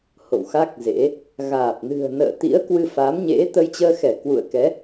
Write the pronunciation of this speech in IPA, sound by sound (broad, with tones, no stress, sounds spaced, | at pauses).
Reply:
h o̰˧˨ w x a˦˥ k̚ z ḛ˧˥ | ɣ aː˨˩ p̚ n ɨ̤˨˩ ə̯ n ə̰ː˧˨ t̪ ḭ˧˥ ə̯ k w ɨ˧ f a˨˦ m ɲ ḛ˧˥ t̪ ə˧ j t͡ɕ əː˧ x ɛ˧˩ k w ṵ˧˨ ə̯ k ɛ˨˦